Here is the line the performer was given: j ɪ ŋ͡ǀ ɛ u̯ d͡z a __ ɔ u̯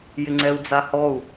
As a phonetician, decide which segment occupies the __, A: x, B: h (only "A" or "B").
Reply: B